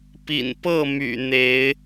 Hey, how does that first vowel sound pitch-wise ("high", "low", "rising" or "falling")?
low